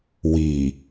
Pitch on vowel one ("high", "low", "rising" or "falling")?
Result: low